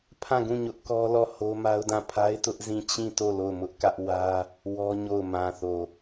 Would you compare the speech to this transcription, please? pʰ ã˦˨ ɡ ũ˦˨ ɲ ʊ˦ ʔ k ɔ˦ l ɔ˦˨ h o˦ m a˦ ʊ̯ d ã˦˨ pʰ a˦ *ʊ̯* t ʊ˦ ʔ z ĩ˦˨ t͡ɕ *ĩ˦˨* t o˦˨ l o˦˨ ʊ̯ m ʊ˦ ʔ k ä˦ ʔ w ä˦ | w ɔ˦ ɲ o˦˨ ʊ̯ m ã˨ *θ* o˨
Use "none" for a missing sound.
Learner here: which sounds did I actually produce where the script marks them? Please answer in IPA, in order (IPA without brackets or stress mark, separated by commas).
ɪ̯, ĩ˦˨, θ